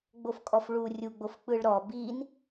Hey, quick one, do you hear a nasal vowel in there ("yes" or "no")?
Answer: no